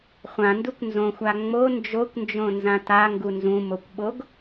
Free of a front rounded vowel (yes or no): yes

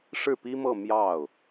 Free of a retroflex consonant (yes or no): no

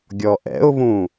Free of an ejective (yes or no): yes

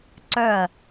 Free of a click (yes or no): no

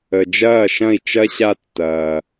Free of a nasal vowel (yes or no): no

